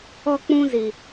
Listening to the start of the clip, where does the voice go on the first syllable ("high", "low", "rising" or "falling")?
high